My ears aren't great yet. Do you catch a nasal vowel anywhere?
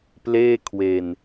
no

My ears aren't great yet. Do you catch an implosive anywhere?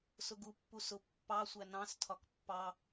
no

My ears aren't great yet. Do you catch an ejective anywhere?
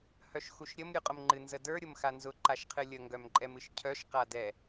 yes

